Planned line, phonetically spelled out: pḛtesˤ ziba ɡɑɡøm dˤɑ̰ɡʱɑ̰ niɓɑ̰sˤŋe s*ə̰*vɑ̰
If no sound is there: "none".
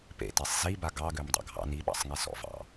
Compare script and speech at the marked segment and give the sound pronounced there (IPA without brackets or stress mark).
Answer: ɔ̰